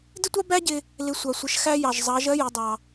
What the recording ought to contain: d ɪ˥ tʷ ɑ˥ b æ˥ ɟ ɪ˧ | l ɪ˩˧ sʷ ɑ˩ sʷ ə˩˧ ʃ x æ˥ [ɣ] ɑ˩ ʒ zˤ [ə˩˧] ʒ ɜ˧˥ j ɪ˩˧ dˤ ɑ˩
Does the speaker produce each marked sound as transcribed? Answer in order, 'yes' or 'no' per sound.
no, no

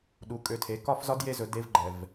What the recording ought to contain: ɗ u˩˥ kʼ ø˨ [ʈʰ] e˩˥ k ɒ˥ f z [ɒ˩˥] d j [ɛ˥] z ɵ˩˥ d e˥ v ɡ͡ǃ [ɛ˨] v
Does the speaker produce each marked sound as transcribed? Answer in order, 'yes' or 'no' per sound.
no, no, no, yes

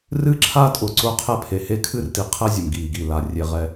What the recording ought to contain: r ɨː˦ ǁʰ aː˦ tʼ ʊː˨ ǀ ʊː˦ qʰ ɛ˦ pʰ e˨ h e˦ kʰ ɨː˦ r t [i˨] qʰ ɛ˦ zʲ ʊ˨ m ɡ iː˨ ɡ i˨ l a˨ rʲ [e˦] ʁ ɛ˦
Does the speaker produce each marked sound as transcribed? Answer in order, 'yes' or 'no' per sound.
yes, no

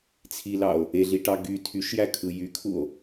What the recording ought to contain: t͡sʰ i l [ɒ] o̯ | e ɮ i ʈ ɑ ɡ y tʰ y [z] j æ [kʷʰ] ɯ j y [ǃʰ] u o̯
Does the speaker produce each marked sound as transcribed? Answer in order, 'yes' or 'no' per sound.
no, no, no, no

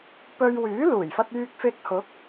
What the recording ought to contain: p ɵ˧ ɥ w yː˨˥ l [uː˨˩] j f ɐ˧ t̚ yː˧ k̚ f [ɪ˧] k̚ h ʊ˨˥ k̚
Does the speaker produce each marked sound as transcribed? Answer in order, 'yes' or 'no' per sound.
yes, yes

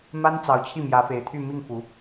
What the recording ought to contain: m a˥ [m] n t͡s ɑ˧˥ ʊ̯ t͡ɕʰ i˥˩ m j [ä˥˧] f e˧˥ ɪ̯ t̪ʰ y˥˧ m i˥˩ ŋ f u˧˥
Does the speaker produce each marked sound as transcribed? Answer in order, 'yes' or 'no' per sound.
no, no

